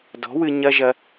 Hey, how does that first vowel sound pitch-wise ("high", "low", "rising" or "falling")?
rising